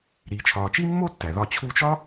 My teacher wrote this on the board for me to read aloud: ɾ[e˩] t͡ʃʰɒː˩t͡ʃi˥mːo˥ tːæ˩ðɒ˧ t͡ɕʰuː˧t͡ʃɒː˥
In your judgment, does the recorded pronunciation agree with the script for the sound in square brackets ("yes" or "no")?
no